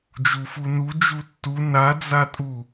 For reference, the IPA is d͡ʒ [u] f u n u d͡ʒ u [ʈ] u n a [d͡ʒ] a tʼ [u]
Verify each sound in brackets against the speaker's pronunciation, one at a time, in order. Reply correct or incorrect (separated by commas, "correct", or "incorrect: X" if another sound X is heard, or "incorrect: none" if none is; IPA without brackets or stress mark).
correct, incorrect: tː, incorrect: d͡z, correct